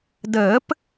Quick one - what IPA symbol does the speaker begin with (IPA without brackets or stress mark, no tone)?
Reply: d